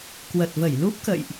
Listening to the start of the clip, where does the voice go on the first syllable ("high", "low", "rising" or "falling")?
low